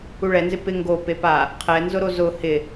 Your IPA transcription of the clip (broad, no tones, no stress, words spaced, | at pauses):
uɭɛnzɪ pɪ ŋɡo pepa | qʰɛnzʊɾo zʊ hɪ